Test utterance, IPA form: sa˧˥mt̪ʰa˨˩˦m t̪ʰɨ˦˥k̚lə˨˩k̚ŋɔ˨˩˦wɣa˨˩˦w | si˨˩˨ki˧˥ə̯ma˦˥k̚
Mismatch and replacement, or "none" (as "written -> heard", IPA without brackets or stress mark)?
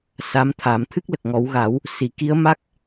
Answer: none